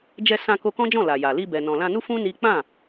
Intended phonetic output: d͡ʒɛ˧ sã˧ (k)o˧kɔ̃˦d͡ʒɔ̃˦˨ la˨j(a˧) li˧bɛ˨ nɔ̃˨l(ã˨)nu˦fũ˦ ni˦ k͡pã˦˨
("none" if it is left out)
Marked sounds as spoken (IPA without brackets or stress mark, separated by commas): k, a˨, ã˧